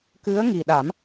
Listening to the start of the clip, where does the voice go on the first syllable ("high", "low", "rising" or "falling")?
rising